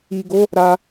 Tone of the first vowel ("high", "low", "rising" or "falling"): low